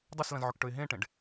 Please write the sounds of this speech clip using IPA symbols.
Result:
dˤ e s l ɐ̃ z ʕ ɵ k ʈ ɵ ɪ̯ ɦ ẽ ʈ ẽ ɖ

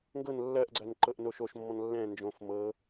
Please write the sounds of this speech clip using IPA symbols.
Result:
ŋ ɡ ɤ n lː ɜ ʔ ɡ͡ǀ ɜ n ǃ ɤ ʔ n o ʃ o ʃ mː ɔ̃ n lː ɛ̃ n d͡ʒ õ f m ɤ

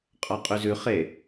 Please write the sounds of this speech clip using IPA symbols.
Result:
qʼ ɑ qʼ y z ʉ χ e

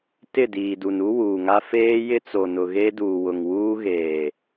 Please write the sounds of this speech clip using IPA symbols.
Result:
t ɪ˦˨ d iː˨ d u˨ n u˦ w uː˨ ŋ a˦ f eː˦ j ɪ˦ t͡s o˨ n ʊ˨ ɣ e˦ d uː˨ w ʊ˨ ŋ w uː˦ ɣ eː˨

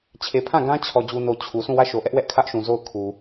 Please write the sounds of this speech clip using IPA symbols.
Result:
t͡ɕʰ e˨ pʰ ã˦˨ ɡ ã˦ t͡ɕʰ ɔ˨ d͡ʑ u˨ n o˨ t͡ɕʰ u˨ s ũ˦˨ w ä˦˨ ʃ o˨ ʔ ɛ˦ ʔ w ɛ˦ ʔ kʰ ä˦ ʔ ʃ ũ˨ z o˦˨ ʊ̯ kʰ u˨

